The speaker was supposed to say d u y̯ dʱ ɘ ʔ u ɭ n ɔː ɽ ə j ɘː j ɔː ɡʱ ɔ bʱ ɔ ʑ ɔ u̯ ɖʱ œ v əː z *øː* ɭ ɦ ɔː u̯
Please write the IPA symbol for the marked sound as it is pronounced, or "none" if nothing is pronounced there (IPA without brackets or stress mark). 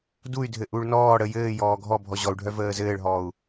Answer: ɘː